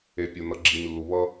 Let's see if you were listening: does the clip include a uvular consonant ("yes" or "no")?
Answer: no